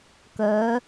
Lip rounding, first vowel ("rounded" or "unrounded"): rounded